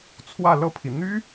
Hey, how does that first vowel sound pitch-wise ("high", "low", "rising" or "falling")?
falling